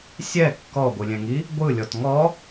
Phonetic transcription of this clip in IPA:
sʲ ɛ kː ɔ ɡʷ ɯ lʲ ɛ̃ ŋ i | ɡʷ ɯ lʲ ɔ t ŋ ɔ

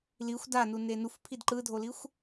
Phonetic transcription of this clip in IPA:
l i xʷ d a n u n e n u f pʰ i d ǃ ɯ dʱ o l i xʷ

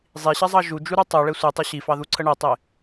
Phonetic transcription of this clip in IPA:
zˤ i ɕ ɛ zˤ ɑ ʒ u d͡ʒ u ɾ u tˤ u ɭ e sʷ i tˤ u ɕ i f ɑ ð u ǀʰ ə ɳ ɛ tˤ e

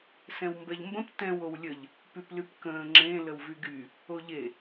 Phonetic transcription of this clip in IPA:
s ɛ̃ w m b ɛ ʎ m b ə̃ p t ɛ̃ w o w lʲ ə ʎ | p y p l y p k ə̃ː ŋ͡ǁ ẽ l ə w v y ɡ y | o ʎ e

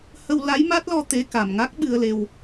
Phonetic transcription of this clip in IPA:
h ə˧ w l a˧˥ j m a˦˥ t̚ l ɔ˧ t̪ e˧˥ k a˨˩ m ŋ a˦˥ k̚ ɓ ɨ˧ ə̯ l e˧ w

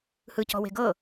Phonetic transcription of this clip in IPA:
h ɯ c ɔ̤ w e̤ ɡ ɤ

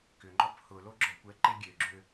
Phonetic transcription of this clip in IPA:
k ʏ ŋ͡ǃ ɔ p h ʊ l o ɡ͡ǁ ɔ kʷ ɛ ǃ e ɡʲ ø ɡ͡ǁ ø

